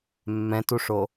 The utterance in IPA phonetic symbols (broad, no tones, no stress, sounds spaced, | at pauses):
mː ɛ̃ t u ʂ o